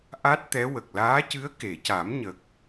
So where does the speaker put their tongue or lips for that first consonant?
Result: throat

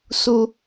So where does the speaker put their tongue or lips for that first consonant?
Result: tongue tip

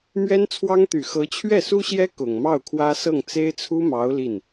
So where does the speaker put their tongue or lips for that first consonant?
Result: lips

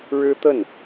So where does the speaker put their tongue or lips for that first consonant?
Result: retroflex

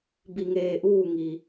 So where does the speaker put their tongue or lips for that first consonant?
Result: lips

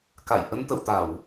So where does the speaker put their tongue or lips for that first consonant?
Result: velum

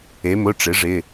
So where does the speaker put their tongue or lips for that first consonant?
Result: lips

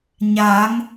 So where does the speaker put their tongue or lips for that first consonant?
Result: palate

